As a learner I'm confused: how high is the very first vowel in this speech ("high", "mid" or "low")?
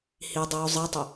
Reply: high